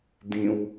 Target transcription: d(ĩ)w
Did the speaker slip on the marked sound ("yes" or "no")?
no